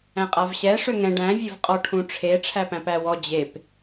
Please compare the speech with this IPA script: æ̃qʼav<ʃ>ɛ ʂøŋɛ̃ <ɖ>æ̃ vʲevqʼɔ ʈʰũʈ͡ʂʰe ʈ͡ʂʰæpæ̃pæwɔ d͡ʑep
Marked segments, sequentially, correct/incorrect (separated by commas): incorrect, correct